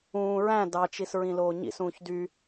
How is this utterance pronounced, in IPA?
ũː ɹ æ̃ d ɑ t͡ʃ i s ɹ ĩ l oː ɲ ḭ s ũː ç d y

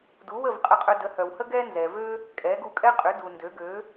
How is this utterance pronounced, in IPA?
d u˩˥ w ə˥˩ v qʼ ə˧ qʼ œ˧ d ə˩˥ h œ˩ w h ə˥ ɡ ɛ˥ n z ɛ˩ v ø˥ | kʼ ɛ˩˥ ɡ u˧ kʼ ɛ˥ qʼ ʏ˩˥ d u˩ n d ø˩˥ ɡ ø˩˥

